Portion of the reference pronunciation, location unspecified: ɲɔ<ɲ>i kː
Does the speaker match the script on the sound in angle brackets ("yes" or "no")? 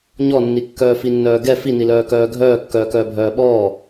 no